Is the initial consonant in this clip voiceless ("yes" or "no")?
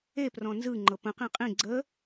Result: yes